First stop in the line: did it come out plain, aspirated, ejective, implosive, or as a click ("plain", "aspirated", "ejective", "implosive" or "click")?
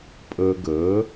ejective